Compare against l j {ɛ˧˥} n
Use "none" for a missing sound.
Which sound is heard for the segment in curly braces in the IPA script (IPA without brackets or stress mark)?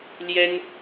ɛ˥